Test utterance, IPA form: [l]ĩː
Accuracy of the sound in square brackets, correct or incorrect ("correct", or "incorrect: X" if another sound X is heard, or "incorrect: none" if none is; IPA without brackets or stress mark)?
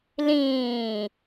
correct